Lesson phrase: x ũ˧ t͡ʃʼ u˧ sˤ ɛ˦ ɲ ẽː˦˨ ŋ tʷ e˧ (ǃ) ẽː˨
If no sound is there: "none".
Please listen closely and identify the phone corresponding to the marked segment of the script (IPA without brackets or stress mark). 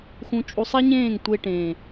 ʈ